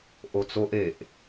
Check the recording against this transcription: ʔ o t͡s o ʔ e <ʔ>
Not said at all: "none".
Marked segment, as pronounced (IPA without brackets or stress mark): ʔ